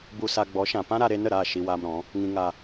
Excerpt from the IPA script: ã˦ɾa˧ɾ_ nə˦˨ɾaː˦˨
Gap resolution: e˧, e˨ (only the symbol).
e˧